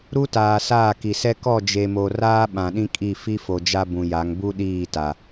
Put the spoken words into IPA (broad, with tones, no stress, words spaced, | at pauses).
ɾu˦taː˨ saː˦˨ki˨sɛ˦ kɔ˦˨d͡ʒe˨mo˨ raː˦ ɓã˨ɗĩ˦kʼi˦˨ fi˦fo˨ d͡ʒa˦bũ˨ ja˨˦ŋ bu˦ɗiː˦˨ ta˨